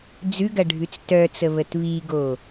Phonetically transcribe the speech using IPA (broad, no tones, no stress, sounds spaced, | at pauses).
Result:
d͡z ʉ ɡ ɐ ɖʱ ʉ t͡s t œ t͡s ə β ə t β i ɡ o